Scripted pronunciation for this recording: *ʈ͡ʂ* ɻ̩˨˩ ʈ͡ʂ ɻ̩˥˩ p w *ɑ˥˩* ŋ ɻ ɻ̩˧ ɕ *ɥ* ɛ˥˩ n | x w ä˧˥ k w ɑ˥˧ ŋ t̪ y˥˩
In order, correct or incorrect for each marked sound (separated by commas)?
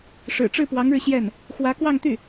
incorrect, incorrect, incorrect